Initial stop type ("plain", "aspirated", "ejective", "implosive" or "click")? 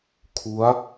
aspirated